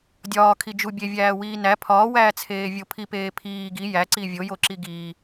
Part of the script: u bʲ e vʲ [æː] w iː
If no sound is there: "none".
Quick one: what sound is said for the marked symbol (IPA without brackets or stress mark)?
æː